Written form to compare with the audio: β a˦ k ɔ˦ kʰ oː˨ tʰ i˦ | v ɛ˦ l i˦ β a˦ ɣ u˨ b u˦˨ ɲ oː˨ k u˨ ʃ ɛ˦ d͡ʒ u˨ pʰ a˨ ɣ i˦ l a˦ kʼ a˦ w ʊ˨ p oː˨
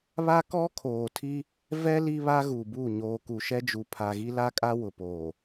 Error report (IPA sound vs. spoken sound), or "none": none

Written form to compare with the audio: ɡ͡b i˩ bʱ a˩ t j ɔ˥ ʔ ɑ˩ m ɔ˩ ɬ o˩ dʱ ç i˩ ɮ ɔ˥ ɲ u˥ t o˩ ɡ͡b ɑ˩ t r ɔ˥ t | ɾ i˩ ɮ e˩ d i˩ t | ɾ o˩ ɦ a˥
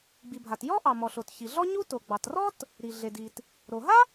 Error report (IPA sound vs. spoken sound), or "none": dʱ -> t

